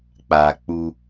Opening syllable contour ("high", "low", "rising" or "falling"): low